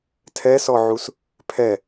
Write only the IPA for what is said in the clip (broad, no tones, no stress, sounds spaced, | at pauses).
tʰ ɛ s ɔ ʕ u s | pʰ ɛ